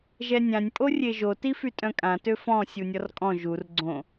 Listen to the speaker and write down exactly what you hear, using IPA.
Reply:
ʒɛnʲãnʲ pʼorʲeʒo tifytʼœ̃kʼã tøfɔ̃ sʲunʲɔrkʼɔ̃ ʒur ɡ͡ǀõ

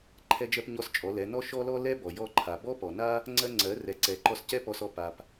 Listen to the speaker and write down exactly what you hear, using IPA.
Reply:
ǃʰɛ˧d͡ʒɜ˧pɲɔ˧s t͡ʃʼɔ˩˧lɛ˩˧ nɔ˥ʃɔ˥lɔ˥ lɛ˥bɔ˩ jɔ˧ǃʰa˩ bɔ˥pɔ˩na˥ | ŋ͡ǀɜ˧ŋ͡ǀɜ˩˧ rɛ˩˧ǀɛ˩˧ ǃɔ˧s cɛ˥pɔ˧sɔ˧ pa˩p

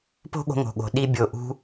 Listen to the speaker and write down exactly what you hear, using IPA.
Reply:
po̤˦ɠo̤˧ŋo̤˨ɠo̤˨ ɗi˧ bʲo˧ ʔṳ˦

